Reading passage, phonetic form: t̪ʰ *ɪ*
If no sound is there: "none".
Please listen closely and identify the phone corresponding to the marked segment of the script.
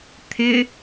ɪ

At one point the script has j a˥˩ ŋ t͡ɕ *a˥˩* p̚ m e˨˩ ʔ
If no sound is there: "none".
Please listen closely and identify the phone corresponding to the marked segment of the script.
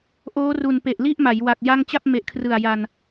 a˥˩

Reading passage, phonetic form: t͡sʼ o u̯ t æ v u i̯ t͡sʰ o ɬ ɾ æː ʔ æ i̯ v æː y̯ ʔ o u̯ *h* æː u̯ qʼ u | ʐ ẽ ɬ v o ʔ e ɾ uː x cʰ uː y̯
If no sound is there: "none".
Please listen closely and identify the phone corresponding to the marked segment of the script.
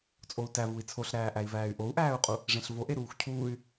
ʔ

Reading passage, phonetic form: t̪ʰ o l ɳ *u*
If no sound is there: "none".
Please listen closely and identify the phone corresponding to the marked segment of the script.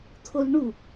u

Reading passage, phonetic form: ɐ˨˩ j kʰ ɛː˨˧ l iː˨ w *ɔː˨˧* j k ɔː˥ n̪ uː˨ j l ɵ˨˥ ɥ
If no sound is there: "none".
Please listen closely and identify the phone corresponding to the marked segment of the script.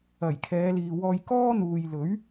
ɔː˧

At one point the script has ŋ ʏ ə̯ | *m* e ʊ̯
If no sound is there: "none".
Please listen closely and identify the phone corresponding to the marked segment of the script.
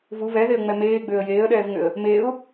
m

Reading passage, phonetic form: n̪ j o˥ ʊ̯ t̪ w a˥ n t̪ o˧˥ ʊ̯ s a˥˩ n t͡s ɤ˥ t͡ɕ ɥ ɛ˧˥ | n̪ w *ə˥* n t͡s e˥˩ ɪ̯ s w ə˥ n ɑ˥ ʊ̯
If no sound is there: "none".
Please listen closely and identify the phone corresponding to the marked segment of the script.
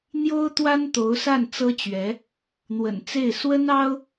ə̰˨˩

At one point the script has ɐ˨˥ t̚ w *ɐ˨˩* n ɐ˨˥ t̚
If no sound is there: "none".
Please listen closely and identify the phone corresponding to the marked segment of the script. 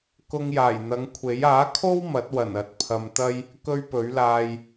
ɐ˨˩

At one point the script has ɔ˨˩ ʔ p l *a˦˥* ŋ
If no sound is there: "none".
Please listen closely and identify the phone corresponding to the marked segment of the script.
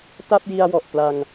a˧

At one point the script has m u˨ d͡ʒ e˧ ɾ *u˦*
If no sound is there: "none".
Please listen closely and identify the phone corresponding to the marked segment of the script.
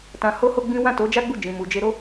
o˦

